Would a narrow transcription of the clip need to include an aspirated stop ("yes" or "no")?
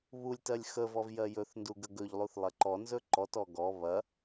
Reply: no